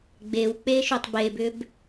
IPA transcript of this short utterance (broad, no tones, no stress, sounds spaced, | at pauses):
ɡ͡b e w k͡p e ʃ ʏ tˤ b e b ʏ b